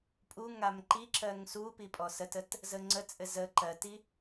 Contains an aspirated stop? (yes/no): no